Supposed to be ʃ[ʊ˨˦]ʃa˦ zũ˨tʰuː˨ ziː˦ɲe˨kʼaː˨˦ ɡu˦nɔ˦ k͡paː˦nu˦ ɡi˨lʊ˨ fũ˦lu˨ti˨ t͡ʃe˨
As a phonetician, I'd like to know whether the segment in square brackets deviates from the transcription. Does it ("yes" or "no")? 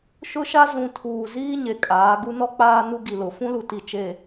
yes